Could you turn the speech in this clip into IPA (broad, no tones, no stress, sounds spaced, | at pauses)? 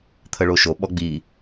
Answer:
t̪ʰ ə ɭ o ʃ o ɓ ɔ ɡ͡b i